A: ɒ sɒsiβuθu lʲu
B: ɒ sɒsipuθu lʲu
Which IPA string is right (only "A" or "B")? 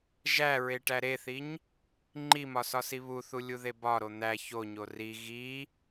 A